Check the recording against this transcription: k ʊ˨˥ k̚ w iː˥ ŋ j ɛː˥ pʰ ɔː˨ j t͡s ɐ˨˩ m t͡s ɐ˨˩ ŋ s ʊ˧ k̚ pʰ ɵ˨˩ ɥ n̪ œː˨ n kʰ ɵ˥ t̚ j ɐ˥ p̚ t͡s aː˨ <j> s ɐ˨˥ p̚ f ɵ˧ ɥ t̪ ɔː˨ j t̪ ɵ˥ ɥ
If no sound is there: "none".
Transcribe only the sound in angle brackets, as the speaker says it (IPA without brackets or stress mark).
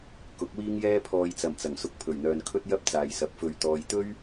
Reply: j